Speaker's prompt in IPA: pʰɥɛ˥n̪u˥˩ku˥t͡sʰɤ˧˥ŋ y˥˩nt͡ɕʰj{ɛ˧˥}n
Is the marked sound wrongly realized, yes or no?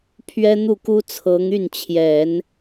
yes